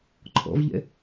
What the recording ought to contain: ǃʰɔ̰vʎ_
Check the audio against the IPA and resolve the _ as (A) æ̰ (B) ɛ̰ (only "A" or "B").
B